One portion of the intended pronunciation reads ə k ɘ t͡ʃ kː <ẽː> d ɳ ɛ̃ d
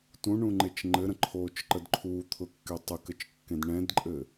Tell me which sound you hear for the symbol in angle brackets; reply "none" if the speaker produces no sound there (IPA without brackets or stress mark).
ẽ